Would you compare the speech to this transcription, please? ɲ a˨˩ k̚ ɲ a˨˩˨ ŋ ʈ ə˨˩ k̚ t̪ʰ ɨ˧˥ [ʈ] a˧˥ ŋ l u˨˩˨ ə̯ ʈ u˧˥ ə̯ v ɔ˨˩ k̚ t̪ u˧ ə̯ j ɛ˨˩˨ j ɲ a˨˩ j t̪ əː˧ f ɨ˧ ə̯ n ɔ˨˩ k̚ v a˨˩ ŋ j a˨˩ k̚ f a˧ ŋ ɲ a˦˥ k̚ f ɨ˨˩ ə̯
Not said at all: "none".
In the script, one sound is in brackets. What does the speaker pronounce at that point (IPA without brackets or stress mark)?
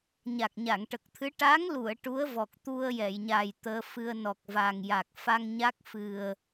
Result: ʈ